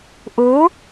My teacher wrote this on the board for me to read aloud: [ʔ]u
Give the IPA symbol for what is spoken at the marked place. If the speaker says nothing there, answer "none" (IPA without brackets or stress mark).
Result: ʔ